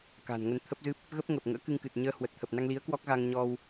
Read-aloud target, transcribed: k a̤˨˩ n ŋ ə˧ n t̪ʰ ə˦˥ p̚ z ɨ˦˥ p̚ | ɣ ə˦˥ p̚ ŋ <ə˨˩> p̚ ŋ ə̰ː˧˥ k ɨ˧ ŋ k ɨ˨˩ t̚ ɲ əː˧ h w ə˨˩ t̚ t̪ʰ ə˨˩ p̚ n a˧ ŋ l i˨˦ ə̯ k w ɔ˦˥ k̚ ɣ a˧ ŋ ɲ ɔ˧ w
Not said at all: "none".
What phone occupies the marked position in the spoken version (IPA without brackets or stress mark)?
ə˨˩